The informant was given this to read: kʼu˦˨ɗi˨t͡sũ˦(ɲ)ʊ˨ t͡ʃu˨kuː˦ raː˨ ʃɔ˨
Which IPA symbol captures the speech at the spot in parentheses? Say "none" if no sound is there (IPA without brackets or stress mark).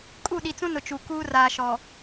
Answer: n